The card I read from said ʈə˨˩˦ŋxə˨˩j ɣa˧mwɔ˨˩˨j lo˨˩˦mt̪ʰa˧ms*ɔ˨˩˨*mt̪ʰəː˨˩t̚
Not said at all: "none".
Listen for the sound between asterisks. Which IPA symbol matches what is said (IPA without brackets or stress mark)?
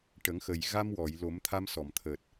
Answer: ɔ˨˩˨